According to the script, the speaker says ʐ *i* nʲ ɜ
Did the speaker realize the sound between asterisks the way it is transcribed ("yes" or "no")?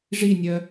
yes